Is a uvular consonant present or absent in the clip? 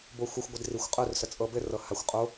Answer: present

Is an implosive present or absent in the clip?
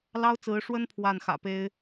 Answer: absent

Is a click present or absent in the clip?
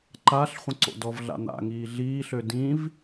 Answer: present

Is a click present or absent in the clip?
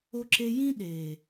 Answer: present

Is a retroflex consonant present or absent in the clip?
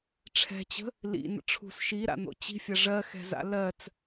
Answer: present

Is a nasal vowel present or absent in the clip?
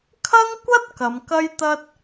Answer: absent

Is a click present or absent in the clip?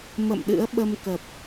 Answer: absent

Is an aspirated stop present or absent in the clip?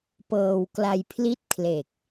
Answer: present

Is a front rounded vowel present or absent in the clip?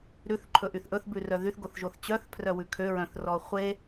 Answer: present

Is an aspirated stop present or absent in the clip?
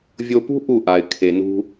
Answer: present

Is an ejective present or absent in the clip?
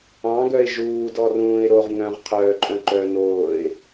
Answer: present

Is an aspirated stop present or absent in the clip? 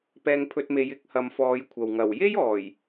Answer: present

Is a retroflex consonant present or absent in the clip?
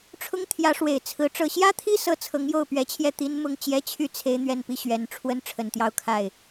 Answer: present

